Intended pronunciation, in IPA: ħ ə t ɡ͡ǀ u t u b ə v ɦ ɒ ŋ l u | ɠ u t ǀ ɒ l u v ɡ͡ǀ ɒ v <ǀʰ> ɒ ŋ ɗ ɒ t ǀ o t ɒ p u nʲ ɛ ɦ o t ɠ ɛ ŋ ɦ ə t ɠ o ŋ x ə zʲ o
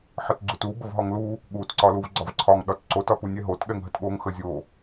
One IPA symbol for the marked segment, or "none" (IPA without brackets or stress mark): ǀʰ